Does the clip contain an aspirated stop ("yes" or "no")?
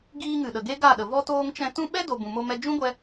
no